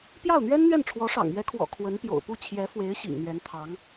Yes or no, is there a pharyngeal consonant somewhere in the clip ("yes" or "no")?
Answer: no